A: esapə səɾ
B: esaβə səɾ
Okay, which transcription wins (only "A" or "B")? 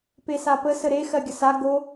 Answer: A